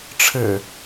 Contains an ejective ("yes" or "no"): no